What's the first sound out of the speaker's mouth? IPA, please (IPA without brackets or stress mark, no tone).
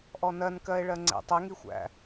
ʔ